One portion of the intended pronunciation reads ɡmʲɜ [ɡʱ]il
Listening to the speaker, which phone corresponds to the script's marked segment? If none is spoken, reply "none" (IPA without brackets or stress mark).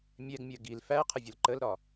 ɡ